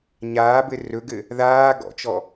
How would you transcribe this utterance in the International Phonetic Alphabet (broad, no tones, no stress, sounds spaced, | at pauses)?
ɲ aː b ɘ r ɵ ɡ ɘ | ð aː ɡ ɔ̰ t͡ʃ ɔ